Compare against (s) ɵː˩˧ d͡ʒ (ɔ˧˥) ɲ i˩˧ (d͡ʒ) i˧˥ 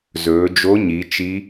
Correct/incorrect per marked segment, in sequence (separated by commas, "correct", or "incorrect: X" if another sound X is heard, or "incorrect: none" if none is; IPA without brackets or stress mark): incorrect: z, incorrect: o˧˥, incorrect: t͡ʃ